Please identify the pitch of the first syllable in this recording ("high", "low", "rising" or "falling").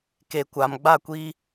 low